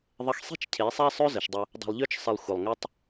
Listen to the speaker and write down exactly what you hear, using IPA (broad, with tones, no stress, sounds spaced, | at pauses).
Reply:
ðˤ ə˧ x sˤ i̤˦ t͡ʃ cʰ e˨˦ sˤ ɛ˦ sˤ ø˦ z ə˨ ʃ dˤ ə˧ | dˤ ɛ̤˧ lˠ ʎ ø˦ t͡ʃ sˤ ɪ˧ lˠ xʷ ə˨ lˠ ŋ ʏ˦ tˤ